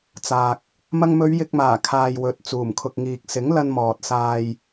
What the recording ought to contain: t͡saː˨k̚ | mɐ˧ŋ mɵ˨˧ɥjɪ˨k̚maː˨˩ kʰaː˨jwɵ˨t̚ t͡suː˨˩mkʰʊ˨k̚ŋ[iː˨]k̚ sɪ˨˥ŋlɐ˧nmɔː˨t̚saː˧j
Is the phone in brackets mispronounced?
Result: no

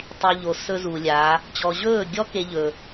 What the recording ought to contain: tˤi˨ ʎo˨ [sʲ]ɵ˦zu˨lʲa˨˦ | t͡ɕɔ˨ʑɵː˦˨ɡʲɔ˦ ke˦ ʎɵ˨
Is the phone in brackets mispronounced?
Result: yes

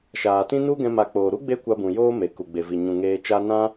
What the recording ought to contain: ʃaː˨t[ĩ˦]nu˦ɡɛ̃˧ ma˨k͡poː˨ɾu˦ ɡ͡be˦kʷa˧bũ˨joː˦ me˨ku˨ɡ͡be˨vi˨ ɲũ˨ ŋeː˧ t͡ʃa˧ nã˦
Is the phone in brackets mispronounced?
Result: no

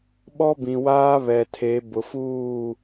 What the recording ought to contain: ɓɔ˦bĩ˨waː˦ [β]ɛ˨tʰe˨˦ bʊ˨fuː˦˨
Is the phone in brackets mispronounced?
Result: no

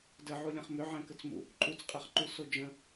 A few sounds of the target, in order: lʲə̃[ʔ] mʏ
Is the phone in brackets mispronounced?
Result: yes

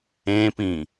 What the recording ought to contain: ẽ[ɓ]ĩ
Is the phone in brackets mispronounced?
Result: yes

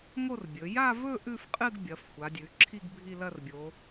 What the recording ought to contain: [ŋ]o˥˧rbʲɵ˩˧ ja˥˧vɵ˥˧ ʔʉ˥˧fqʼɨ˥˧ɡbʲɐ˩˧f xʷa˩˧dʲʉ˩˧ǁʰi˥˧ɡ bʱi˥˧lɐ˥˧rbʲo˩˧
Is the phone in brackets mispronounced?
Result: no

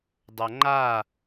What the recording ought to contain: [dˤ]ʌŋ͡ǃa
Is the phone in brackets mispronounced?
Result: no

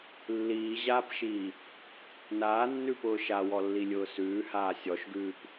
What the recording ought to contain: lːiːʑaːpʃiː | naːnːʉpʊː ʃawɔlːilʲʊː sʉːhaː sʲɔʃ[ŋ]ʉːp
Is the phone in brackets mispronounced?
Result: yes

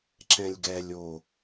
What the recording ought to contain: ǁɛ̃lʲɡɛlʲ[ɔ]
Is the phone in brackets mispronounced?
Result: yes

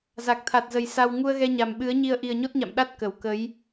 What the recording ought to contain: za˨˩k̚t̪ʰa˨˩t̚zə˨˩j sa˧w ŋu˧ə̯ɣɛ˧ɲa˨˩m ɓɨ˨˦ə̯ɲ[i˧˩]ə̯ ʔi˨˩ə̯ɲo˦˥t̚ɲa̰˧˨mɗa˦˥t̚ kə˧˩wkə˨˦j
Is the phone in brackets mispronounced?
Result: yes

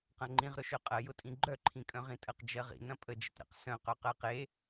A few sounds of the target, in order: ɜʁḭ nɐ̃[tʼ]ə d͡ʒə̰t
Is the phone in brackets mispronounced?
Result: yes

